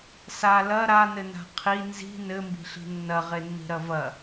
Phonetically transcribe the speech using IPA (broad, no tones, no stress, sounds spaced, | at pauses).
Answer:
s a l ɐ ɾ a n ɘ n a̤ qʰ i n z i̤ n ɘ m b i̤ ɬ i̤ nː ɐ ʁ e nː i̤ ɾ ɐ v ɐ